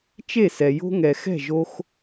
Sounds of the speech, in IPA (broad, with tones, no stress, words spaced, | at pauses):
t͡ʃe˥˩sɛ˩ jo̤˥ŋɛ˩ xɛ̤˥˩ʒo˧x